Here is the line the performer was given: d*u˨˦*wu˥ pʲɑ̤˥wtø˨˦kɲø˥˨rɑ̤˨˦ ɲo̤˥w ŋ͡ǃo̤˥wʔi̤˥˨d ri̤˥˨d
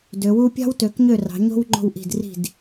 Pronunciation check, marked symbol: incorrect: ø˨˦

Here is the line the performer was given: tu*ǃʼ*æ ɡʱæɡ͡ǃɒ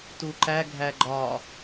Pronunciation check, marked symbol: incorrect: ǃ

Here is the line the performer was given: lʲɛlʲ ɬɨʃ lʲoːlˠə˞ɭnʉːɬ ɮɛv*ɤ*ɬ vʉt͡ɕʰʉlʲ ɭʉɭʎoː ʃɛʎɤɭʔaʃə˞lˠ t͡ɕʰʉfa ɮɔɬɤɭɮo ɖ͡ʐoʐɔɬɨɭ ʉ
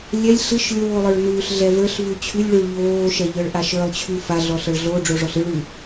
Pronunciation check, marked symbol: incorrect: ə˞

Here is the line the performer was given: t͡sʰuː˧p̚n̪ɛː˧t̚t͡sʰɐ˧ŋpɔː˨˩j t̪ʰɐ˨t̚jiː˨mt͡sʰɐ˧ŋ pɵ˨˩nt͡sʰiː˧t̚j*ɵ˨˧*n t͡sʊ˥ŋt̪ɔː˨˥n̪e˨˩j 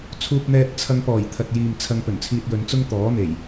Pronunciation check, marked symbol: correct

